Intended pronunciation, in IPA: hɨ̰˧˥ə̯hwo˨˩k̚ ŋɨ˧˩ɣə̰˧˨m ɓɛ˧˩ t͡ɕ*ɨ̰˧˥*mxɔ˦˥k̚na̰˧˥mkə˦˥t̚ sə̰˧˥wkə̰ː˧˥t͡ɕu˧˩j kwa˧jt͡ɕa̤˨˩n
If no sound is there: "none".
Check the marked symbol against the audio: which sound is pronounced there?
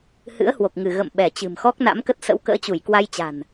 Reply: ɨ̤˨˩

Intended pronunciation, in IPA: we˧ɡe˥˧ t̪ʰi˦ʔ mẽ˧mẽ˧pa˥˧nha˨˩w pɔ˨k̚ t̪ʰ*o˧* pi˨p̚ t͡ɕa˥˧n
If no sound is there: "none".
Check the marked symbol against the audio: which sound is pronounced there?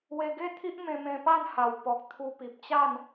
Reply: u˧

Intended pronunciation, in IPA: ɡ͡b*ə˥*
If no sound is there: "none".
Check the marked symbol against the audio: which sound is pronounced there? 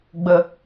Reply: ə˧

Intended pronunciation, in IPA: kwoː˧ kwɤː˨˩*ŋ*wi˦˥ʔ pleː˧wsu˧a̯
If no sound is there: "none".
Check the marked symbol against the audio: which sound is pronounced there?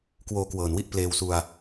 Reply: n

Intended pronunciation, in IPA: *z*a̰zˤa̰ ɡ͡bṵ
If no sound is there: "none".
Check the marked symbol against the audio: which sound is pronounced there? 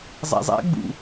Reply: zˤ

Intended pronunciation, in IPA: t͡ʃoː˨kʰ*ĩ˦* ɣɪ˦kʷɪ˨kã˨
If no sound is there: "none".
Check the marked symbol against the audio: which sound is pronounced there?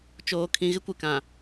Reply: ĩ˨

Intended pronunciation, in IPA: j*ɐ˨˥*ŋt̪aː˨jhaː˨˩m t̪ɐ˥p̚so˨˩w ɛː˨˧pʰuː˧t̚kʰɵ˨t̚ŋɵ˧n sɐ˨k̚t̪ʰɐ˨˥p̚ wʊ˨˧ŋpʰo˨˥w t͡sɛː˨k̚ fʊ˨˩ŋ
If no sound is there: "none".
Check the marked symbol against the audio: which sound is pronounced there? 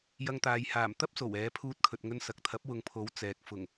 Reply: ɐ˧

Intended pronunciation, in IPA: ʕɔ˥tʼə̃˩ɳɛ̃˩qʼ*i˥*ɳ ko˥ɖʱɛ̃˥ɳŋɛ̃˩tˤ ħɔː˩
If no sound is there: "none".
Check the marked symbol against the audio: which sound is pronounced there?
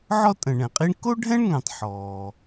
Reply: i˥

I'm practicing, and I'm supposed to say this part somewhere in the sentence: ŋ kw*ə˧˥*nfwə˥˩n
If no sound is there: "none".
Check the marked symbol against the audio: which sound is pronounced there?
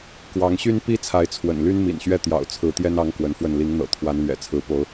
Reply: ə˧˥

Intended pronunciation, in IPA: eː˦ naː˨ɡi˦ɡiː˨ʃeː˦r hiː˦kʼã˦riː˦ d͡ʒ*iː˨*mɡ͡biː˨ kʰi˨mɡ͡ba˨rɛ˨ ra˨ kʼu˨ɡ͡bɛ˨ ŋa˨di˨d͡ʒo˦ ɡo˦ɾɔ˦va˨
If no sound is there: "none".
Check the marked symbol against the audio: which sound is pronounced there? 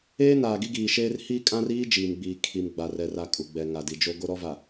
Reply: iː˨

